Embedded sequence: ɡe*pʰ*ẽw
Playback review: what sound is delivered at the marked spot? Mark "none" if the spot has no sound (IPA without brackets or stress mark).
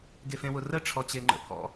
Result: f